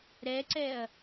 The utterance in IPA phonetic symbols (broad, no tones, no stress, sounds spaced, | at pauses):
ɾ ɛ ǀ ɛ ɐ̯